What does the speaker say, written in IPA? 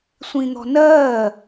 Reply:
sʷĩn̪ɔ̤nɜ

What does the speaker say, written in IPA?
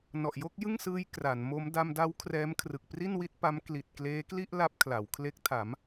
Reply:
nɔ˨˩ʔjo˥˩k̚jɯ˥˩ŋsɯː˦˥j kra˩˦nmo˦˥m da˧mda˦˥w kʰrɛː˦˥mkʰrɯ˨˩k̚ pri˥˩nwi˦˥t̚ pa˦˥m kli˨˩t̚ kleː˦˥kli˥˩ʔ la˦˥p̚kʰla˩˦wkʰle˦˥k̚ tʰa˩˦m

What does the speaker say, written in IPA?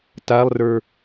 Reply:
talˠrə˞

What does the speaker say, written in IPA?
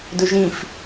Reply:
dɵʒĩf

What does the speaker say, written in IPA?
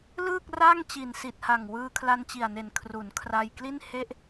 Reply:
lɯː˥˩k̚ra˥˩ŋ t͡ɕi˨˩nsi˨˩t̚ha˨˩ŋ wɯː˧kʰla˧nt͡ɕi˨˩a̯ne˨˩n kʰru˩˦nkʰra˧jkli˥˩nhe˥˩ʔ

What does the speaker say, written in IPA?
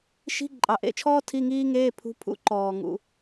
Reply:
ʃi̤˧˥˧ ǃʼɑ˨ʔḛ˧˥˧t͡ʃʰɔː˥ tʰi˧˥˧ŋiː˥ŋeː˧˥˧pʰṳ˧˥ pʰṵ˧˥ǃɔː˨ ŋṵ˧˥˧

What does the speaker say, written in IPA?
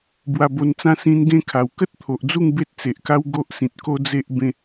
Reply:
bwa˧bo˧nt͡sã˦ sĩ˧n ɡẽ˥˧kʰa˨˩w kə˦t̚t̪ʰo˨ʔd͡zu˥˧ŋ be˦t̚t͡se˨ʔ ka˦wɡo˦ʔsĩ˨t̚ ko˦d͡ze˦ʔ bẽ˧

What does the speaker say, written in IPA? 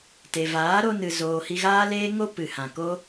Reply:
te˨vaː˨˦ɾo˧nɨ˨ zoː˨ hi˧ɣaː˦leː˦ŋo˦ pɨ˨hã˨ko˦

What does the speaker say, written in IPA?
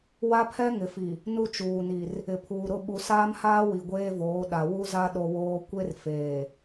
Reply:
wa˦pʰɛ˦ ŋɪ˨fi˨ | nu˦t͡ʃuː˨ni˨r | ɪ˨pʰuː˨ ɾʊ˦˨ɓu˨saː˦mhaː˦ wi˨ɡʷeː˦voː˨˦ ɗa˨ wu˦za˦ ɗo˦woː˦ kʷe˦rfeː˨

